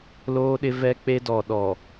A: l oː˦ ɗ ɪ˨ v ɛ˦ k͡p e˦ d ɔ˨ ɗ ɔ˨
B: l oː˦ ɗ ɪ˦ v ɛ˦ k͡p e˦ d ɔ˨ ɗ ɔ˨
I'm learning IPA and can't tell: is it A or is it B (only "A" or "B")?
B